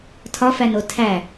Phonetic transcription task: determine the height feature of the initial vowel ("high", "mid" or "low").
low